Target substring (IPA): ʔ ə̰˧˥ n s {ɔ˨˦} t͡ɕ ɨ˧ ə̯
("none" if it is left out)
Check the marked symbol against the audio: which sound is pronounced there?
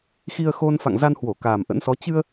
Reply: ɔ˨˦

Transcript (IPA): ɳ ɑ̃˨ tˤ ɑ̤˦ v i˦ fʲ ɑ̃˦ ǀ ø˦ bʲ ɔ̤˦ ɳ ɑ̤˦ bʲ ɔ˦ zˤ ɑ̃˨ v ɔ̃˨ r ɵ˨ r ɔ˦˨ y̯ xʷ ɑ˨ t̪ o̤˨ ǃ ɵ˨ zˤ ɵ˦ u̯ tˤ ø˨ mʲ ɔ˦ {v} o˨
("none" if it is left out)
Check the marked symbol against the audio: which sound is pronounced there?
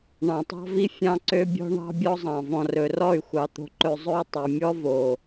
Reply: v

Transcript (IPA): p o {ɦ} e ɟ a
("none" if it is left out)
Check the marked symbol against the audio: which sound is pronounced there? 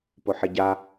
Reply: ħ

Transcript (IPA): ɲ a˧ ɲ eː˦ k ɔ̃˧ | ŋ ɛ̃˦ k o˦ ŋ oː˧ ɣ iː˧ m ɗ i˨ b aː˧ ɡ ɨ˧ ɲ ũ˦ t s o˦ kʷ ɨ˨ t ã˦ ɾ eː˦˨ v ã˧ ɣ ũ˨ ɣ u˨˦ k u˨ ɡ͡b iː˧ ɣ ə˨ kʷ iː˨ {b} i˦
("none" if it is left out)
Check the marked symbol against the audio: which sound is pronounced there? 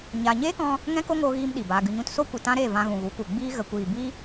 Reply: b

